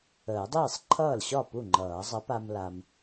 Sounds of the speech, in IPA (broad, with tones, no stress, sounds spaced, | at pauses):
əː˨˩˦ dˤ iː˥˩ sˤ ǃʰ ʌː˥˩ l ɕ ɒ˥˩ p u˥˩ ŋ͡ǃ ʌː˨˩˦ zˤ ə˨˥ p a˧ m l a˧ m